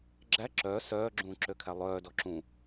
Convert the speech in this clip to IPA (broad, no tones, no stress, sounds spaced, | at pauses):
ɡ͡ǁ æ ǁ œ s œː ɡ͡ǁ ũː ǁ ø kʰ æ lˠ œː d ɔ ǁ ũ